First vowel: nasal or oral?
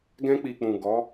nasal